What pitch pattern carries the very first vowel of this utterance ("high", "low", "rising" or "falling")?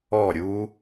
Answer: falling